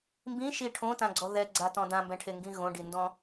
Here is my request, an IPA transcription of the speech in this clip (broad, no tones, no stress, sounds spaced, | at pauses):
m b ĩ ʃ i ʈʰ õ t ã ɡ͡ǀ ɔ ð ɛ ɡ͡ǀ a t ɔ̃ d ã m b ɛ̃ ʈʰ e ŋ ɡ ĩ ɣ õ ɖ i n d ɔ̃